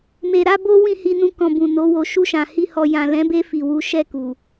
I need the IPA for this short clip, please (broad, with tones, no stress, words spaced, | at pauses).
me˨ɾa˨˦ bo˦ wĩ˦˨hi˧ nũ˧kɔ̃˨ bũ˨no˨˦wo˧ ʃu˧ʃã˨hi˧ hɔ˨jã˨lɛ̃˨˦be˦ fi˧wu˦ ʃɛ˦˨ku˨